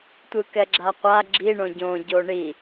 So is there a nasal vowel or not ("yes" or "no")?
yes